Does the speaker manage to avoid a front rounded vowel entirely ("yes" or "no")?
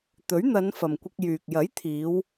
no